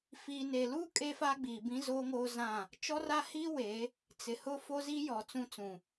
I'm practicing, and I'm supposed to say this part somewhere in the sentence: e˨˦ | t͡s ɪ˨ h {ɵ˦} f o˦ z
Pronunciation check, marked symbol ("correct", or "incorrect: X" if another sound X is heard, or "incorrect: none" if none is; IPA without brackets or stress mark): incorrect: ʊ˦